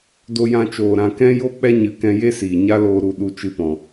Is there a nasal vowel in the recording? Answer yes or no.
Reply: yes